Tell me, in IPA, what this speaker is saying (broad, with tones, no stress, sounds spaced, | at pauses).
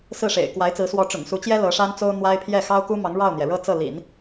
s ɹ̩˥˩ ʂ ḛ˨˩ ɪ̯ k w a˧˥ ɪ̯ t͡s ɹ̩˧˥ s w ɔ˧˥ ʈ͡ʂ ʊ̰˨˩ ŋ s u˧˥ t͡ɕ j ɛ˥ l ɤ˧˥ ʂ a˥ n t͡s o˥ ʊ̯ n̪ w a˥ ɪ̯ pʰ j ɛ˥˩ x ɑ˥ ʊ̯ k u˥ m ɑ˧˥ ŋ ɻ ɑ˥˩ ʊ̯ n̪ j ɛ˩ ɻ ɤ˥˧ t͡s ɤ˥˩ l ḭ˨˩˦ n